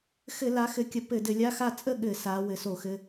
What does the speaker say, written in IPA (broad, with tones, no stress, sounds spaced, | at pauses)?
x ɘ˧˩˧ l a˩˧ x ɘ˩˧ kʲ ə˩˧ p ɘ˧˩˧ d ɘ˧˩˧ lʲ a˧˥˧ x a˥˨ t͡sʼ ə˥˨ ɠ ɘ˧˩˧ s a˩˧ w ɘ˩˧ s o˧˩˧ x ɘ˩˧˩